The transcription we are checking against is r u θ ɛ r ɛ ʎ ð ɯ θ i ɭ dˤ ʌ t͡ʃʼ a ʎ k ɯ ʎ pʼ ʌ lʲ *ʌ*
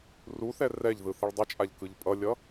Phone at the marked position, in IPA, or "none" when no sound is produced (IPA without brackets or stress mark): ʌ